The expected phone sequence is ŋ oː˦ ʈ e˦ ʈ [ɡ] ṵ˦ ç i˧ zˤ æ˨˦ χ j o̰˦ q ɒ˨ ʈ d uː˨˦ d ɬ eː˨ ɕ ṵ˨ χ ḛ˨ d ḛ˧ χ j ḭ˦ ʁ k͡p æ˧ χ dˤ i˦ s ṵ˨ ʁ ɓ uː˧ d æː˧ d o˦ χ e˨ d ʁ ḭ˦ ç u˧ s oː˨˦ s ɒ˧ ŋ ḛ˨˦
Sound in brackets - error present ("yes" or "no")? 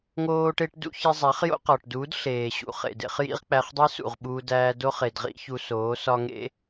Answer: yes